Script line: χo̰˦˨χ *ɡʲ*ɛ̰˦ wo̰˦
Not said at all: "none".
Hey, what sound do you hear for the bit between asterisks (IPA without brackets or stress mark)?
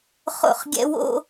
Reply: ɡʲ